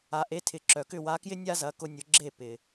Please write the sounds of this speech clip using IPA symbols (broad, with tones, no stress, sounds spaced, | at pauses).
a˩ ʔ e˩˥ tʰ ɪ˩ ǁ œ˩ k ʏ˥˩ w a˩˥ k j ɪ˥ nʲ a˥ z ɐ˩˥ k ʊ˧ nʲ ʊ˩˥ ɡ͡ǁ e˥˩ p ɪ˩